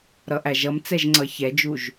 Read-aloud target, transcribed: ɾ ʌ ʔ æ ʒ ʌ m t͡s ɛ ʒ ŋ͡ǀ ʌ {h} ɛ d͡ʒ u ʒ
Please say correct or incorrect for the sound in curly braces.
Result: incorrect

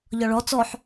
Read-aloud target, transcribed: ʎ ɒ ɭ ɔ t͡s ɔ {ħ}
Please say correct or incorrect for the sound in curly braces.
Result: correct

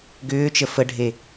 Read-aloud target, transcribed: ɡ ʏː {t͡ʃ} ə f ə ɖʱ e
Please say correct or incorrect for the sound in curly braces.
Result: correct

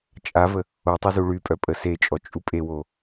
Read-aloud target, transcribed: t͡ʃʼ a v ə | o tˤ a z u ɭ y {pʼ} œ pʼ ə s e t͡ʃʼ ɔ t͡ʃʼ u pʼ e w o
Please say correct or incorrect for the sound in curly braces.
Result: correct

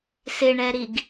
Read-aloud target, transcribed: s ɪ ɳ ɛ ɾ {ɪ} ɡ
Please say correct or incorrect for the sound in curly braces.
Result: incorrect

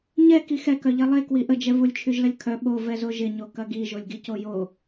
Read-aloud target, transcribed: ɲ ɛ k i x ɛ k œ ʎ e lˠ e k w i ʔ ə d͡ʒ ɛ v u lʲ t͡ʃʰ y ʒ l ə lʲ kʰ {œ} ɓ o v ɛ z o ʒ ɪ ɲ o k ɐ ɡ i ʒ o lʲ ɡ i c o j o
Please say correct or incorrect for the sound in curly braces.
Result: correct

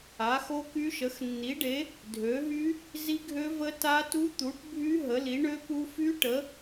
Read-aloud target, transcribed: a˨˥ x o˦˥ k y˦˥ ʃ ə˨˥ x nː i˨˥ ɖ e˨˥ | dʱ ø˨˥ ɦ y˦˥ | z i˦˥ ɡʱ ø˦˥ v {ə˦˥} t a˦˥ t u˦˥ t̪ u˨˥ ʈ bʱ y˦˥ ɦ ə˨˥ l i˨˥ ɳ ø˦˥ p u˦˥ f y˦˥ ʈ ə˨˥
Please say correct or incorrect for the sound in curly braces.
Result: correct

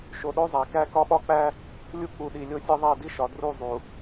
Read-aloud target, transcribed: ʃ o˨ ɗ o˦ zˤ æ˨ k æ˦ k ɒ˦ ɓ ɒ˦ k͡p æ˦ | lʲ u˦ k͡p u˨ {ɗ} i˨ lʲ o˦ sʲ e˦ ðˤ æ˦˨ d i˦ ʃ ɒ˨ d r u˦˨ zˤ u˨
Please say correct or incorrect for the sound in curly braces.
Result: correct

